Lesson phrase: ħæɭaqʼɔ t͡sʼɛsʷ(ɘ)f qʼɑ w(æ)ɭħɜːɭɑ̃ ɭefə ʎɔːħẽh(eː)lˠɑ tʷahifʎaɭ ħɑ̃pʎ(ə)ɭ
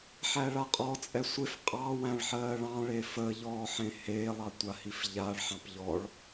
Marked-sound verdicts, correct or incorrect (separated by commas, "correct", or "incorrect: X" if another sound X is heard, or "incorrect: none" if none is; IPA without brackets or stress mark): incorrect: e, incorrect: æ̃, correct, incorrect: ɔ